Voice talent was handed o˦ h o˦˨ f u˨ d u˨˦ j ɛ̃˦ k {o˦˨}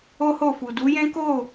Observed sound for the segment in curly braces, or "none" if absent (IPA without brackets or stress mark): o˦˨